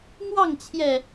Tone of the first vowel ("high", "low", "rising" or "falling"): falling